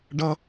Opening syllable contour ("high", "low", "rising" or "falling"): high